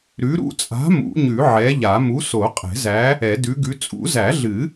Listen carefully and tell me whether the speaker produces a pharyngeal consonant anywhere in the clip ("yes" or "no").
yes